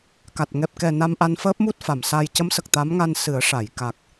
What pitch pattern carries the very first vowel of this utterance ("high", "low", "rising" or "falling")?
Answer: low